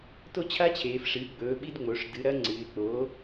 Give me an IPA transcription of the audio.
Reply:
to˥t͡ɕʰa˥t͡ɕʰeː˩˧f ʂɨː˩˥ɡ͡bɵː˩˥ ɓi˥dŋ͡mo˩˥ʂ dɨ˩˥ɾɐ˧˥ŋ͡ǀɨː˩˧ɪ̯k͡poː˩˥

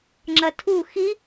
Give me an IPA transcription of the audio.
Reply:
ŋ͡ǁɐtʰu xi

